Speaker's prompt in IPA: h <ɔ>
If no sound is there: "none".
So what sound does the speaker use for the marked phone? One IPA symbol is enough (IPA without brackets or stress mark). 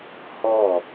ɔ